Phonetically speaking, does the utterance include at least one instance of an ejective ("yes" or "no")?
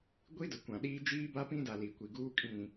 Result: yes